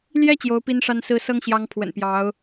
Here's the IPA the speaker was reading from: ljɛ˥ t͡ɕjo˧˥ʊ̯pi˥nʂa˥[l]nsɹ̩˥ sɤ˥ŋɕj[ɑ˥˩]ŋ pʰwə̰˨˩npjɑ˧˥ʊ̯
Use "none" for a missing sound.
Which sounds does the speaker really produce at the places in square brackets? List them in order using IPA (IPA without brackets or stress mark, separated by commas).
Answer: none, ɑ˧˥